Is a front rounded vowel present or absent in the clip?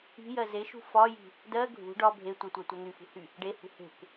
present